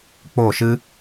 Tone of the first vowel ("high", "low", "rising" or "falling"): falling